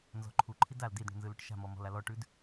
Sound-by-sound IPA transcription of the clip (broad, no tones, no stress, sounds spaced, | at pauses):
n z ɔ̤ ǃʰ u ǃʰ i d a l d i d ɳ ṳ n z ɯ l u ʈ ʃ a̤ m ɔ m ɔ̤ l a l ɔ ʈ ʉ d